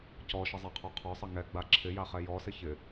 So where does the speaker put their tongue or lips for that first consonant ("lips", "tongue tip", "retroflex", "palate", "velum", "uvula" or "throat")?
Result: palate